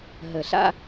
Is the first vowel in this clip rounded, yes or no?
no